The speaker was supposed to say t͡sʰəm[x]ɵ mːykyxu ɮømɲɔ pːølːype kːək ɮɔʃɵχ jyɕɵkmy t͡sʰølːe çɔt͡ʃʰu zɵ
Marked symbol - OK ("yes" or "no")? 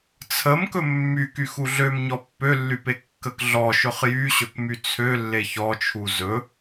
no